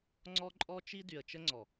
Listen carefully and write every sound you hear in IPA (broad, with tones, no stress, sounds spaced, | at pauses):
ŋ͡ǀ ɔ˦ ǃʼ ɔ˦ t͡ʃ i˦ d y˨ ə̯ t͡ʃ ə˦ ŋ͡ǀ ɔ˨